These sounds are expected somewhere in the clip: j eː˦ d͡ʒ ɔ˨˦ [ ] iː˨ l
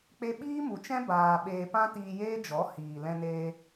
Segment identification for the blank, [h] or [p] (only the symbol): h